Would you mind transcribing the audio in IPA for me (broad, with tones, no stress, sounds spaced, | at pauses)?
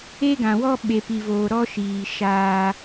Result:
e˦ ɡ ã˨ w ɔ˦ ɓ e˨ p i˨ v oː˨ ɾ ɔ˦ ʃ iː˨ ʃ aː˦